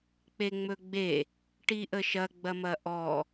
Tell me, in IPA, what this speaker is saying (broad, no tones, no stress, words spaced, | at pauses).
k͡peŋ͡mɵɡ͡be | ʈiʔəʃɐ ɡ͡bɐmɐʔɔ